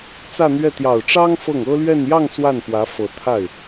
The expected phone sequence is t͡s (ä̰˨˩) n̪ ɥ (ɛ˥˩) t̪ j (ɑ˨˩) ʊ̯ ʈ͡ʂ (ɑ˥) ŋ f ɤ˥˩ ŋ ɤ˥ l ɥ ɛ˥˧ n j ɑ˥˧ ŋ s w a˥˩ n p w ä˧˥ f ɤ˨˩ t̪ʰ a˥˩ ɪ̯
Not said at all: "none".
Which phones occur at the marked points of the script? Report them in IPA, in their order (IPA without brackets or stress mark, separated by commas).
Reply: ä˥˧, ɛ˥˩, ɑ˨˩, ɑ˥